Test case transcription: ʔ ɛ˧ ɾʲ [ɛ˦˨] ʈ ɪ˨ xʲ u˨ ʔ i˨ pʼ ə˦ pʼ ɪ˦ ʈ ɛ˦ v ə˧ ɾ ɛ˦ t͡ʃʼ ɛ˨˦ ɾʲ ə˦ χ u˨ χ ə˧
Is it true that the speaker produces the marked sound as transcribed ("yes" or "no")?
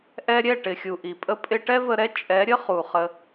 yes